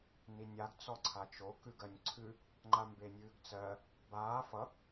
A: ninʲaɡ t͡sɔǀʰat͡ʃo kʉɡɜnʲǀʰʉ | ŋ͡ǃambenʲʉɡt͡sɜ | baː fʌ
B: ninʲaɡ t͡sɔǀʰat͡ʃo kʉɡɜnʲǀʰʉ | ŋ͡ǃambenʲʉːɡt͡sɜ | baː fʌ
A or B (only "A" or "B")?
B